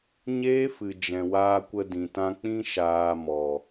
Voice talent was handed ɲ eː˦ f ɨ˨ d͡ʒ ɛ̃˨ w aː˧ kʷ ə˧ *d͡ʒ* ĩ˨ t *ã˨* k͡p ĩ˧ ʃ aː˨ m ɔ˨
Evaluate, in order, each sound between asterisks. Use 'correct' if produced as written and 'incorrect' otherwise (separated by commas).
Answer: incorrect, incorrect